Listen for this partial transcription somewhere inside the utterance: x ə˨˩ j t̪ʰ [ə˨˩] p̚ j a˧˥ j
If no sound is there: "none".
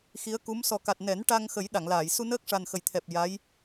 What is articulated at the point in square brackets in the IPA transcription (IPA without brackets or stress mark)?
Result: ɛ˨˩